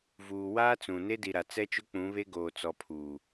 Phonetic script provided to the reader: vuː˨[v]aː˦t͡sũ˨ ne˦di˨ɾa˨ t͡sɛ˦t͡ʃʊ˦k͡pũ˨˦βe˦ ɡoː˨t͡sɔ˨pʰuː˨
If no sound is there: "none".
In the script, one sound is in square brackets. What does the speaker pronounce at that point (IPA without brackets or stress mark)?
w